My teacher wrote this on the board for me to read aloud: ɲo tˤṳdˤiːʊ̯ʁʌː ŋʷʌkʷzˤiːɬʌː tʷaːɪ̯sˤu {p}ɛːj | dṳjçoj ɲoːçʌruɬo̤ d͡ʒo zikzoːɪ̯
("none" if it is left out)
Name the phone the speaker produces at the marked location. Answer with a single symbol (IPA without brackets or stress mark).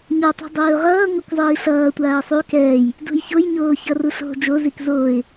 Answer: k